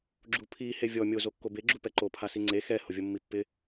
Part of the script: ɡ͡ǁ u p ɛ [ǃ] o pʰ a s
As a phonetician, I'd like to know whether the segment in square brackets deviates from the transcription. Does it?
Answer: no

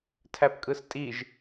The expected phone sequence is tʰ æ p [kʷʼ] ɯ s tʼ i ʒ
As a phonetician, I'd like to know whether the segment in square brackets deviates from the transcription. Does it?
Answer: yes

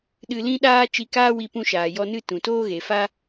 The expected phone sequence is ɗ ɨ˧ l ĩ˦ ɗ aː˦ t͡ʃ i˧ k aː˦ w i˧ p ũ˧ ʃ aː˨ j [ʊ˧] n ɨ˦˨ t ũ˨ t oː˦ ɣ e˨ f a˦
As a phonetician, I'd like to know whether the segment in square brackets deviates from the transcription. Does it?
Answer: yes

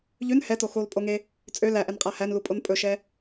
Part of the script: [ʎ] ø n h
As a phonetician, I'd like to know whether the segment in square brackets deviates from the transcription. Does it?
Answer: no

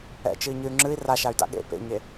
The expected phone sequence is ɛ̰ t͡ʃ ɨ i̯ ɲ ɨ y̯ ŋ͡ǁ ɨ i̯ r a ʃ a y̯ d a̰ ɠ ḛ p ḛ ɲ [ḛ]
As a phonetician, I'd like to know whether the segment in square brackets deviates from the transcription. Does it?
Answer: yes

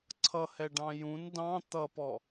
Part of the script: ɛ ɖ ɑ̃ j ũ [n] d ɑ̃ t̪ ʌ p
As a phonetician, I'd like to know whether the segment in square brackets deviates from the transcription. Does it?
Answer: no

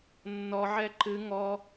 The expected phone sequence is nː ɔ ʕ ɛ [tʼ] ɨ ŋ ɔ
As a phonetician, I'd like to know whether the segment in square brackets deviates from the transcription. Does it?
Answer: yes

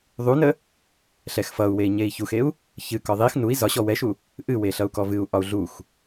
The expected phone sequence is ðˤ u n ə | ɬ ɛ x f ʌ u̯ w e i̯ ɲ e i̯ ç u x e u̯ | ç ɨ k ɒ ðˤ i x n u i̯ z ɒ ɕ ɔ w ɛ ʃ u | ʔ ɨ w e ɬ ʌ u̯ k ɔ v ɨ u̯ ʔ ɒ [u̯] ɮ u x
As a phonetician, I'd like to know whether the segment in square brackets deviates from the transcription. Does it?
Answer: no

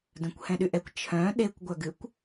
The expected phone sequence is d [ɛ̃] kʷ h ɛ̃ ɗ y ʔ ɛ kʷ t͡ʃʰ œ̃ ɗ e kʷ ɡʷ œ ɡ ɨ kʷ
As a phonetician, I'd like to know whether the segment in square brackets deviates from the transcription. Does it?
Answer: yes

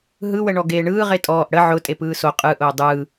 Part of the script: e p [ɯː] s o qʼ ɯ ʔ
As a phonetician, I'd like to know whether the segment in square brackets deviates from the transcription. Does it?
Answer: no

